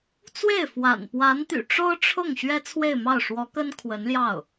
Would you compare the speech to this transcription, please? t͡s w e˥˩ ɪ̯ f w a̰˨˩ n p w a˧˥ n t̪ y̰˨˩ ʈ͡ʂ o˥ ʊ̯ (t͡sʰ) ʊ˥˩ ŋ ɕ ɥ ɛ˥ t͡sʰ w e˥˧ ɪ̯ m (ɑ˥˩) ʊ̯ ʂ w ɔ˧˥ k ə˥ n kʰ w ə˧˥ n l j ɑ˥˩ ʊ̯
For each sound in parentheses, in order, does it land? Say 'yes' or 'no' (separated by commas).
no, yes